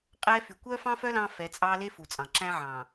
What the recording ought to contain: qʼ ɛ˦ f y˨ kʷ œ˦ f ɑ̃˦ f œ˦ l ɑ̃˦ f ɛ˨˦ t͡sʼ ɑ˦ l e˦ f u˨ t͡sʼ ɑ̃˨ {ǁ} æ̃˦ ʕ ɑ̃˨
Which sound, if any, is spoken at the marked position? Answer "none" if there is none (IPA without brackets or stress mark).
ǁ